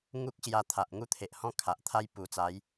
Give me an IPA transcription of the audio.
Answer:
ŋu˦k̚ ɕja˧t̪ʰa˨ʔ ŋu˥˧t̪ʰe˨ʔhɔ̃˦ kʰa˨ʔ t̪ʰa˦j pu˨˩t͡sa˨˦j

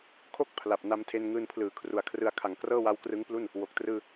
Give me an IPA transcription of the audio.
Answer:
kʰo˦˥k̚ pʰla˨˩p̚ na˧mtʰe˧nŋɯː˧npʰlɯː˩˦ kʰru˨˩a̯kʰrɯ˧a̯ kʰa˩˦ŋkrɤː˥˩ wa˦˥wkrɯ˦˥ŋplu˥˩n | wo˨˩k̚ trɯː˧

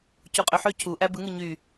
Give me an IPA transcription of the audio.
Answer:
cuqʼøħø cʰu ʔæbɯ ŋɯɲy

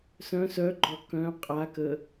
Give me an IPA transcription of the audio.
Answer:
sœ̃ sœɡ͡ǃɔ kœ̃ qʼakə

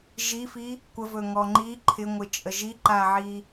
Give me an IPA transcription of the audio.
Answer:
ʒifi | kʷəvɵŋɔ ŋ͡ǃi ǃʰɪŋʷɪt͡ʃʼə ʒiǃaʕi

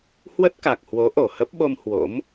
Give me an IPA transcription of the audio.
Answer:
hwə˦˥t̚ka˨˩k̚hwo˨˦ ʔo˧˩hə˦˥p̚ɓo˧m hwo̰˧˥m

